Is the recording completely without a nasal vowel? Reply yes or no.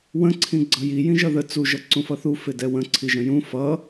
no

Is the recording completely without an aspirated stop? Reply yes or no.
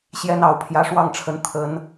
no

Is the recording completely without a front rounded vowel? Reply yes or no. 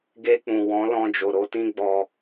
yes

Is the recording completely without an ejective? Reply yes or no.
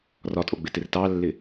no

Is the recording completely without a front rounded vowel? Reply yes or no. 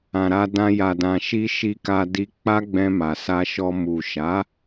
yes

